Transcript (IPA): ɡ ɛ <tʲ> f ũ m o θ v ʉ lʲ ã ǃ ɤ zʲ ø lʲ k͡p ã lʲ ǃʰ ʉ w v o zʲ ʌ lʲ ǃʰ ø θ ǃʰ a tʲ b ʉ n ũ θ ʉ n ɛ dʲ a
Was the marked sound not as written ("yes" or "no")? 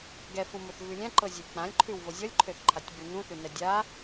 yes